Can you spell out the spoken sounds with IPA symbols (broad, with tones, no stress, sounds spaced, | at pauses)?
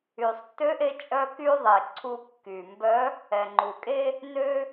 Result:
y˩ sˤ tː ø˧˥ ʔ e˧ t͡ʃʼ œ˥ k y˥ ðˤ e˩ ǀʰ u˧ kː y˩ m b œ˧˥ | ɛ˩ ŋ͡ǃ u˩ kʼ e˥ | n ø˥